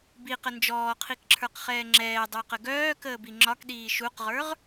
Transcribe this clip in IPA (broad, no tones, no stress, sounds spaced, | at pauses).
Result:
b i q ə n d͡ʒ ɔː qʰ i k ǁʰ ə˞ q χ ɛː ŋ͡ǁ ɛː dˤ œ q ə ɡ œː k əː b i ŋ͡ǁ ɒ k ɗ iː ʃ u q ʁ ə˞ ʁ